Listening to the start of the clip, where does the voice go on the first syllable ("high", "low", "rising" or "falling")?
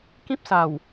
high